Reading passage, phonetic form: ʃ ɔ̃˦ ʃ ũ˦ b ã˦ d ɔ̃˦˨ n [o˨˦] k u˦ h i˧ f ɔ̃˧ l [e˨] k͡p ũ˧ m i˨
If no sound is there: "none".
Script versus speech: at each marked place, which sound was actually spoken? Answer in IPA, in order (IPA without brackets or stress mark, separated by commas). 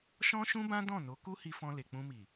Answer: o˨˦, e˨